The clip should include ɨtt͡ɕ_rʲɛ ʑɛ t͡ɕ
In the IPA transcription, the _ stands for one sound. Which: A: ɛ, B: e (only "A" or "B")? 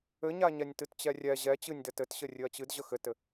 A